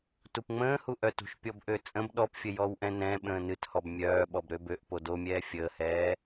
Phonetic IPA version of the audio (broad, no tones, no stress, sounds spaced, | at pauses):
t u p ŋ͡m ə̃ː h u ʔ œ t ṳ ʃ pʲ ɔ b ʔ ø t͡sʼ ə̃ b ɗ ɔ p fʲ ə j ɔ w ʔ ɛ̃ n ɛ̃ ɓ ə̃ː n ɨ t h ɔ b mʲ œː ɓ ɔ b ɾ ø b ø ʔ p o d o mʲ ɛː fʲ əː h ɛː